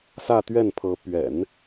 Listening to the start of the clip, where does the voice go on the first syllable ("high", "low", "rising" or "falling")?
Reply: falling